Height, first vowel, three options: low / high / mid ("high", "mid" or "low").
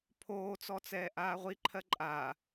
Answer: mid